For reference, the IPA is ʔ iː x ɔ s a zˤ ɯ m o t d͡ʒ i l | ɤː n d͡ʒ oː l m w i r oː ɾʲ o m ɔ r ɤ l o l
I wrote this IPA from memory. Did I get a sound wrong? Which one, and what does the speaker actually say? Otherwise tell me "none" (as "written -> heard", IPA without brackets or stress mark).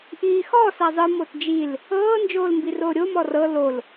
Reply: w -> b